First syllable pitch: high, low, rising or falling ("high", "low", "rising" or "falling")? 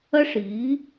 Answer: high